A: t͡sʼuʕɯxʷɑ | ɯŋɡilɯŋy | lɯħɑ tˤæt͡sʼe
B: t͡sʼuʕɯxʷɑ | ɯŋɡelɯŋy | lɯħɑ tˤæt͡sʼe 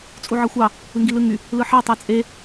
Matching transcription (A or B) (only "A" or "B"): A